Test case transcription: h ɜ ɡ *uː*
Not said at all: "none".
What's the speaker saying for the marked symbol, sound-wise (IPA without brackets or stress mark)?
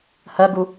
u